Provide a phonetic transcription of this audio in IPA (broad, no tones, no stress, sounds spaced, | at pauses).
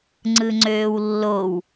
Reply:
ŋ͡ǀ ɯ ŋ͡ǀ øː w lː o w